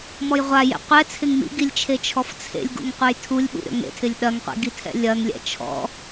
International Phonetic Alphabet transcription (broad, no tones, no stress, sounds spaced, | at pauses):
m ɔ j ʁʷ a j ḛ qʷ ɛ t͡sʰ ɪ ŋ m ḭ ɡ i lʲ t͡ʃʰ e t͡ʃʰ ɔ f t͡sʰ ḛ lʲ ɡ ṵ ŋ qʷ œ j tʰ u lʲ ɓ ṵ ɾʲ ɔ̰ ŋ ḛ tʰ ɪ lʲ ɗ ɐ ŋ qʷ ḛ ɡ i tʰ ɛ̰ lʲ ɐ ŋ lʲ ɛ̰ t͡ʃʰ ɔ̰